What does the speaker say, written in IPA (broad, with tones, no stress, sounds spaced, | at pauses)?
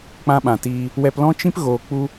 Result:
k͡p ã˦ ɓ ã˨ t iː˧ | w ɛ˧ p l ɔ̃˦ t͡ʃ ĩ˦ p ɣ oː˨ k͡p u˦